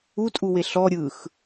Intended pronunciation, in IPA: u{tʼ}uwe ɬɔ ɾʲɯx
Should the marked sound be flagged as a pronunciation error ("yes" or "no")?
no